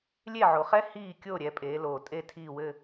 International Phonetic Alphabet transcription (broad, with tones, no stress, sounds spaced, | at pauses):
lʲ e˥˨ ʕ o˨ χ ɛ˥ h iː˥˨ kʲ o˥˨ ɾʲ ɛ˨˦ pʼ eː˨˦ l oː˨ tʼ e˥˨ tʰ iː˥˨ w ɘ˥˨